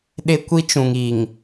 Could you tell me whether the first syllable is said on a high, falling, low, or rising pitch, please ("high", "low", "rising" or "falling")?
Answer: high